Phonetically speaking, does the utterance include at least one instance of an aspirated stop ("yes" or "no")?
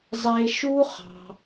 no